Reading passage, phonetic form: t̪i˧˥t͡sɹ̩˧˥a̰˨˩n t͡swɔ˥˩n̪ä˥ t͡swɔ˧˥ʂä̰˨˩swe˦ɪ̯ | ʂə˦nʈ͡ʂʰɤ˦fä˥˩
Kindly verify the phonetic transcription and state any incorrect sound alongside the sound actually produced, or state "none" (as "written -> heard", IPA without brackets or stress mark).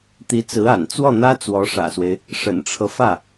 ə˦ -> ə̰˨˩